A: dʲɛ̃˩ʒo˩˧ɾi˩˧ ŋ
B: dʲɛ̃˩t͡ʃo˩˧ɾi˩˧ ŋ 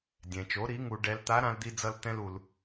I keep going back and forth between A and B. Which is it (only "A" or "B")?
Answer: B